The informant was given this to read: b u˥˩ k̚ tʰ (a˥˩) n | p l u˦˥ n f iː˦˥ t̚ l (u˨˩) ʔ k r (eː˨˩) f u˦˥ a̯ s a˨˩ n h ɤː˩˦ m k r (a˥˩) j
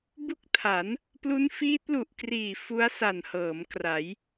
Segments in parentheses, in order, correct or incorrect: incorrect, correct, incorrect, incorrect

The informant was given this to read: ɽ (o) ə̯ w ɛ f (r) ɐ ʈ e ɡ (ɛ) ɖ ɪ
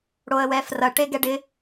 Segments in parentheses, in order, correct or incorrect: correct, correct, correct

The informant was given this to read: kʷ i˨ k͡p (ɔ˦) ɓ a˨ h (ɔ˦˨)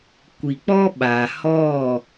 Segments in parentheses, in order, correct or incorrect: correct, correct

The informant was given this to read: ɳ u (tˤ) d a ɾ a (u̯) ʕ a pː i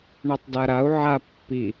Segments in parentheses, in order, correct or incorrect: correct, correct

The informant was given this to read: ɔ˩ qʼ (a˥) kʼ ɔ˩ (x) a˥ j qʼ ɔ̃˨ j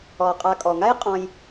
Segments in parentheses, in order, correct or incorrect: incorrect, incorrect

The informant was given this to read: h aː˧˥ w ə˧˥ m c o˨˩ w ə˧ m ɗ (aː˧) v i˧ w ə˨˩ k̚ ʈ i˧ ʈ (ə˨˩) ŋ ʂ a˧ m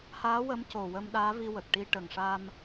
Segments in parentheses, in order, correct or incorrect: incorrect, correct

